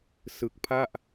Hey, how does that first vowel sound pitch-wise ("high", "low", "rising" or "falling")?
low